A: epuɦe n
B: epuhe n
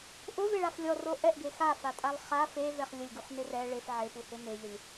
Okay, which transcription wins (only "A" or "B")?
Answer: B